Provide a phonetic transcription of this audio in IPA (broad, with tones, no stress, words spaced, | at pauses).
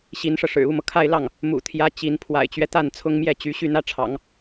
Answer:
ɕi˧˥nʂɤ˧ʂɻ̩˨˩ u˥˩mɤ˩kʰa˥˧ɪ̯lɑ˥˩ŋ | mṵ˨˩t̪ʰjä˧˥ t͡ɕi˧˥n pʰwa̰˨˩ɪ̯t͡ɕɥɛ˦ t̪a˥˩n t͡sʰʊ˥ŋmjɛ˥˩t͡ɕy˧˥ ɕy˥˩n̪ä˥ʈ͡ʂʰɑ̰˨˩˦ŋ